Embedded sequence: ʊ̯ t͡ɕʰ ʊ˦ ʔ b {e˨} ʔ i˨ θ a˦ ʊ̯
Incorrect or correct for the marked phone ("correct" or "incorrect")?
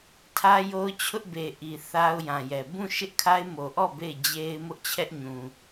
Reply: correct